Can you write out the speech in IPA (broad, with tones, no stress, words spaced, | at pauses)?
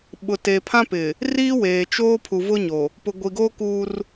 ɓʊ˨te˨pʰã˦pɪ˨ | riː˦weː˨t͡ʃoː˦ pʰu˨vʊ˦ɲo˨ | pʊ˨ɡʷi˨ɡoː˦ kuː˦r